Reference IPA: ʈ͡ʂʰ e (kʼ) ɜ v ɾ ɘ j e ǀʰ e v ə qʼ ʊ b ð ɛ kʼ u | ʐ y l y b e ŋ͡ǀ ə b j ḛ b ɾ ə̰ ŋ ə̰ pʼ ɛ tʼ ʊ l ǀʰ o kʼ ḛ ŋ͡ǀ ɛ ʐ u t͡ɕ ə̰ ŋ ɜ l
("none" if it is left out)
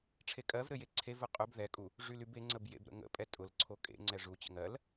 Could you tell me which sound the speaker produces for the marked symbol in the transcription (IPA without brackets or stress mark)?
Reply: kʼ